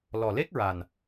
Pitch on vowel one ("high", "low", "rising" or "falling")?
low